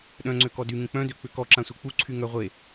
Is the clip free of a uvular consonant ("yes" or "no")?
no